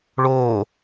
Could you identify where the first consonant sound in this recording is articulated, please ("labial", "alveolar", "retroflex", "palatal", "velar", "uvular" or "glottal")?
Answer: retroflex